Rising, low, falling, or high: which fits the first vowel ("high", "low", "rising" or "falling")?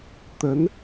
rising